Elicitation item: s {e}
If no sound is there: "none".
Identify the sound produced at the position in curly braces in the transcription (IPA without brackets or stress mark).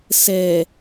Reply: ɛ